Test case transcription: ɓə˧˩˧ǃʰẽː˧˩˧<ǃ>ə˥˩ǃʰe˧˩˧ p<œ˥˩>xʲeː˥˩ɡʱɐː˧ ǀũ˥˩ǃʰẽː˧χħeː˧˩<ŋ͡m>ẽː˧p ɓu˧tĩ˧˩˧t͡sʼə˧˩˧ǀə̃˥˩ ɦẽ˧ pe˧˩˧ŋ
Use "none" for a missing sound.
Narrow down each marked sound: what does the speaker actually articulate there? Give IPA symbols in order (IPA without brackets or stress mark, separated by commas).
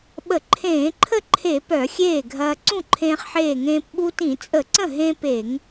ǃʰ, œ˧˩˧, ŋ